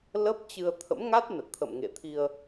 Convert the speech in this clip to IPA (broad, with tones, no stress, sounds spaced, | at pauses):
l ə˦˥ p̚ t͡ɕ ɨ˧ ə̯ t̪ʰ ə̰˧˥ m ŋ a˦˥ t̚ n ə˨˩ t̚ t̪ʰ ə̰˧˨ m ŋ ḛ˧˨ t̪ʰ i˧ ə̯